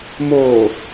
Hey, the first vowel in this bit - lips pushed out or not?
yes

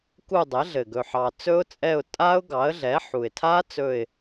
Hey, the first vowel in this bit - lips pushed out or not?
yes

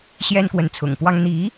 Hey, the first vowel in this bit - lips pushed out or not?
no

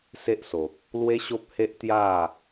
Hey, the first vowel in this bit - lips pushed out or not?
no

